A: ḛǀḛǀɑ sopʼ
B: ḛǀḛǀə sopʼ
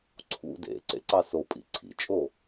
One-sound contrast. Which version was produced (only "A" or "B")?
A